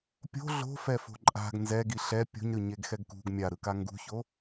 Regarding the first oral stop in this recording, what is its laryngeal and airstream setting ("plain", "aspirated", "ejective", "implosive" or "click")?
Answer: plain